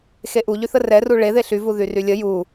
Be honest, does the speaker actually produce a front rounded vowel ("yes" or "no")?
yes